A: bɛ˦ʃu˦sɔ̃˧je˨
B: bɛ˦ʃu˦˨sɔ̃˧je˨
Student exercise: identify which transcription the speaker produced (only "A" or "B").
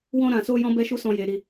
A